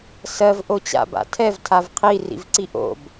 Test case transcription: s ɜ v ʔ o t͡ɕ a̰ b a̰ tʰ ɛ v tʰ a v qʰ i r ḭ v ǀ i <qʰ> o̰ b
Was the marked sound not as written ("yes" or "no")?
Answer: yes